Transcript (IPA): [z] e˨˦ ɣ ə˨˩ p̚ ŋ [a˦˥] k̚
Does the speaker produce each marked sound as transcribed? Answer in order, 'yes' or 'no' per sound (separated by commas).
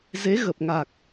yes, no